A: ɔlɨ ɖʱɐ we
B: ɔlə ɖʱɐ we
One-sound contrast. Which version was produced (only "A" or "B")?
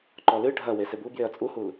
A